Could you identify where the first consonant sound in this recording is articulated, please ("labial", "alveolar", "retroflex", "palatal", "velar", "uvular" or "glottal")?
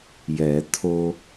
palatal